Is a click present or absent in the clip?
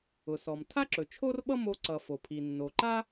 present